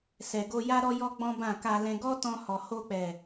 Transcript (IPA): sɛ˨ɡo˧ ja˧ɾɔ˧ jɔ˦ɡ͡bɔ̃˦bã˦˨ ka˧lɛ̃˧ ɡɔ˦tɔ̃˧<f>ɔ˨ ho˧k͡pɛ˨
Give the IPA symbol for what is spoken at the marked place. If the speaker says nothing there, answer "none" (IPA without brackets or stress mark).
h